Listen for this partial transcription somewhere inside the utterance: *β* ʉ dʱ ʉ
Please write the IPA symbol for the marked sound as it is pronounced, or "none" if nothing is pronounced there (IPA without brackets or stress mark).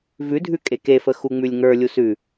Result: v